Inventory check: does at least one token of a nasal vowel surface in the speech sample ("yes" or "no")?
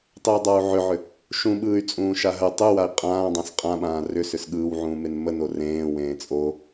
yes